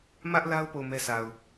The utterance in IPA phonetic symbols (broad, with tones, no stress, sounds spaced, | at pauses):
m ä˦ ʔ l a˦ ʊ̯ p o˦˨ ʊ̯ m ɛ˦ sʰ a˨ ʊ̯